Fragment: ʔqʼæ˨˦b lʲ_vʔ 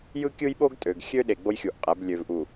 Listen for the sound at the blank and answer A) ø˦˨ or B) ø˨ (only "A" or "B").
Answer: B